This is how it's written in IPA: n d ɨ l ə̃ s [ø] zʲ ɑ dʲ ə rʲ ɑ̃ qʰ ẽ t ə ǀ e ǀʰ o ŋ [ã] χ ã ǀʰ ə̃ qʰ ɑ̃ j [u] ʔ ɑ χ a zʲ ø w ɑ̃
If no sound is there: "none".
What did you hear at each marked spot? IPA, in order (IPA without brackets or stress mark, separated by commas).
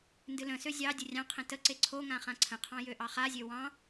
ø, ã, ø